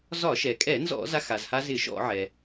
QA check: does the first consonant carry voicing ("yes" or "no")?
yes